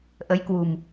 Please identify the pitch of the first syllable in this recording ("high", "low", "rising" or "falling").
rising